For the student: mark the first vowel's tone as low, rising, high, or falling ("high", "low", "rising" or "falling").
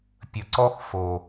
low